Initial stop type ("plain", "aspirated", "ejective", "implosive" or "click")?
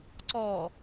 click